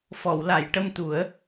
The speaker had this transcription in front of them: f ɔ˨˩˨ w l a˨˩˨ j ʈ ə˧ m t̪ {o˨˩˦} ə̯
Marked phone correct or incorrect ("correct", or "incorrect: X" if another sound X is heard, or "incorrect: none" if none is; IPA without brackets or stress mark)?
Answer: incorrect: u˨˩˦